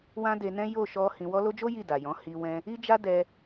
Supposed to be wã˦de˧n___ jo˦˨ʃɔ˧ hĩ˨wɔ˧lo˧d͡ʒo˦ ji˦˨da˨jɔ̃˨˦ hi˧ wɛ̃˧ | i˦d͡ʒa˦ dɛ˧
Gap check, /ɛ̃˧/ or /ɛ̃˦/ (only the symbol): ɛ̃˦